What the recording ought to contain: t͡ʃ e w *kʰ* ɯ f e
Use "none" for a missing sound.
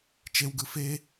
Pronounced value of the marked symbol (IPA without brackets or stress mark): ɡ